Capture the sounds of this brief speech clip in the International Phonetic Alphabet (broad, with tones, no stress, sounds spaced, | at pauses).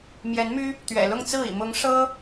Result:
m j ɛ˧˥ n m y˥ | t̪ ɥ ɛ̰˨˩ l ʊ˥˧ ŋ t͡s ɹ̩˥˩ ḭ˨˩ m ʊ˧˥ ŋ ʂ ɤ˥